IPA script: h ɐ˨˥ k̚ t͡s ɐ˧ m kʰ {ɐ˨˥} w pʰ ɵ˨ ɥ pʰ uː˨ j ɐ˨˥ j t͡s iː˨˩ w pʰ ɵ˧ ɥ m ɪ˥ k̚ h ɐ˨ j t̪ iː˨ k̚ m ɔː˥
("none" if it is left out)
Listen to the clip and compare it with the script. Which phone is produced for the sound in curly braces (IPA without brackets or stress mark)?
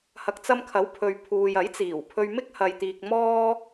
ɐ˨˥